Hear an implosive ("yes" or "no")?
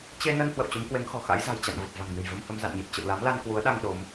yes